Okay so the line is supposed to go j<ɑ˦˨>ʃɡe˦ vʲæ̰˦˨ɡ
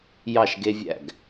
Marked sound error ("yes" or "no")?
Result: no